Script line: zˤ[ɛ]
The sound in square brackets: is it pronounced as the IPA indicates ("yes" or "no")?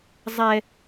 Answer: yes